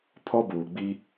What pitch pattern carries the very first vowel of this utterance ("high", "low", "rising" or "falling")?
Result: high